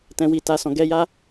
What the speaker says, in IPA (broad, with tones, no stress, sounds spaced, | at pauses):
t ɛ̃˨ w i˨ t a˨ s ɔ̃˨ ɡ ɛ˧ j a˦